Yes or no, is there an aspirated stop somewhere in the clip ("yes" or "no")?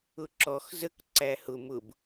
no